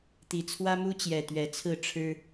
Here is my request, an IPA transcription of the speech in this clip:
t̪ i˨˩ t͡sʰ w ä˦ m u˦ t͡ɕ j ɛ˨˩ t̪ ɥ ɛ˨˦ t͡sʰ ɹ̩˥˨ ʈ͡ʂʰ ɻ̩˦

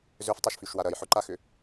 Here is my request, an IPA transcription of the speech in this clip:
z ø f tˤ o ʃ f y ʃ w a ɾ ɐ j ħ ʊ ǃ a x ʏ

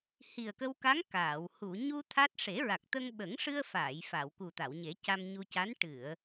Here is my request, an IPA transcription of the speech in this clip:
h i˨˩ ə̯ k ə˧ w k a˧˥ ŋ k aː˨˩˨ w h u˨˩˨ ɲ u˧ t̪ʰ a˦˥ t̚ ʂ e˨˩˦ ɹ a˨˩ k̚ t̪ ə˧ ŋ ɓ ə˨˩˦ ŋ ʂ ɨ˧ ə̯ f aː˨˩˨ j f a˨˩˨ w k u˨˩ t̪ a˨˩˨ w ɲ e˨˩˦ c a˧ m ɲ u˧ c a˧˥ n ʈ ɨ˨˩˨ ə̯

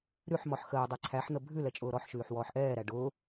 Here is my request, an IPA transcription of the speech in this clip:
ɾ ʉ ħ m ɔ ħ x əː dˤ æ ǀʰ æ ħ n̪ ə bʱ ʉ l ɛ t͡ʃʼ ʊː ɾ ɔ ħ ʃ ʉː ħ w ɔː ħ ʔ ɛː ɾ æ ɖ ʊː

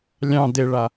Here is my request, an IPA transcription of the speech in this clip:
lʲ ɑ̃ d e ɭ a

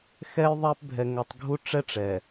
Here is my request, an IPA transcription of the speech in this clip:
x ɛ˦ j ðˤ ɛ˦ p bʱ ɛ˨ ŋ ɵ˨ tˤ ɡʱ u˦ ʈ͡ʂ ɛ˦ ʈ͡ʂ ɛ˨

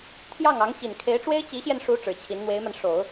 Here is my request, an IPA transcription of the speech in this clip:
t̪ʰ j ɑ˥˩ ŋ ɑ˧˥ ŋ t͡ɕ i˨˩ n kʰ e˧˥ ɪ̯ ʈ͡ʂ w e˥ ɪ̯ t͡ɕ i˧˥ ɕ j ɛ˧ n ʂ u˧˥ ʈ͡ʂ ɻ̩˨˩ t͡ɕʰ i˧˥ n n̪ w e˧˥ ɪ̯ m a˧ n ʂ o˨˩˦ ʊ̯

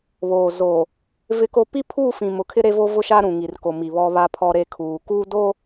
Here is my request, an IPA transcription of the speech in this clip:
β oː˨ z o˨ | v ɪ˦ k o˦ p i˦ pʰ uː˦˨ f ĩ˨ m ʊ˨ kʰ ɪ˦ ɾ e˦ v o˦ v ʊ˦ ʃ a˦ ɾ ũ˨ ŋ i˨ r k o˨ m i˨ β ɔ˦ β a˦ pʰ ɔ˦ ɾ e˦ kʰ uː˨ k uː˦ d o˦

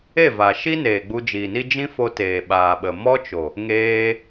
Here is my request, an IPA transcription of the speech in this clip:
e˦˨ v a˨ ʃ i˦ n eː˨ ɡ͡b u˧ d͡ʒ iː˨ n i˦ d͡ʒ ĩ˦ f o˧ t eː˨ ɓ aː˨ ɓ ə˨ m ɔ˦ t͡ʃ o˨ | ŋ eː˧

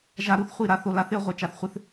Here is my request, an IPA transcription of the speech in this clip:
ʒ a˨ ɾ u˨ θ χʷ i˦˨ ɾ a˦ θ o˨ l a˦ θ ɪ˦ ɐ̯ ʁʷ ɪ˨ t͡ʃ a˨ θ χʷ ɪ˦ θ

